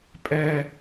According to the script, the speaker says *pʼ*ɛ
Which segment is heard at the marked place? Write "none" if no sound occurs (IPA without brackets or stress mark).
pʼ